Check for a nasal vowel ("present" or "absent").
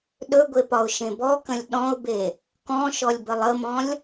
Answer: present